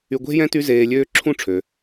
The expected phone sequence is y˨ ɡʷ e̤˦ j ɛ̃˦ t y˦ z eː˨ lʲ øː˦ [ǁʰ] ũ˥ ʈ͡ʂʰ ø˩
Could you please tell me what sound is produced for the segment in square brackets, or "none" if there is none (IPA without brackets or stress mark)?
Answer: ǁʰ